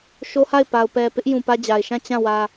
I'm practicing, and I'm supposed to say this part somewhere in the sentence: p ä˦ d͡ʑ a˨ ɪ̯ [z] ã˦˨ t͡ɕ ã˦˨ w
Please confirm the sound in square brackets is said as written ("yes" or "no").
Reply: no